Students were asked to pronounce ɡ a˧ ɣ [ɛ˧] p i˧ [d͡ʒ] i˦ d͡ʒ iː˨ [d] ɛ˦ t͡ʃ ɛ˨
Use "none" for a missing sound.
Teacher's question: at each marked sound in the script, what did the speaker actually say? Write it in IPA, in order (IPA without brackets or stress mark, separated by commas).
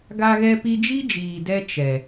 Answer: ɛ˧, d͡ʒ, d